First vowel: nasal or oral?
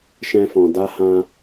nasal